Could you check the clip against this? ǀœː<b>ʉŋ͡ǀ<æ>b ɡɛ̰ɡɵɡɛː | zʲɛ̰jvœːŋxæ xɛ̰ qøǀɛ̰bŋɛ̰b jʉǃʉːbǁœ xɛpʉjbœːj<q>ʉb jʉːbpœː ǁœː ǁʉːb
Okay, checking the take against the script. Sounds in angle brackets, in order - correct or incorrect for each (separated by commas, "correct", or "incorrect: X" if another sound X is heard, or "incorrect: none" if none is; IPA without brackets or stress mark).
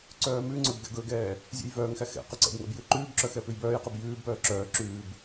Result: incorrect: m, incorrect: œ, correct